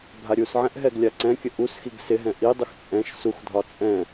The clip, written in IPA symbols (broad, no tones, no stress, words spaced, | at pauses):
bʱaɾʲusʕɛ̃ʔ ɦɛɡlʲaǀɛ̃kʲə ʔusxiɡ sɪɦɛ̃ ʔidˤux t͡sʼɛ̃ʃ suxdʱɒ t͡sʼɛ̃